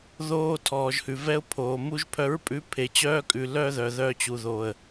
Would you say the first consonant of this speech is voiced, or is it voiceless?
voiced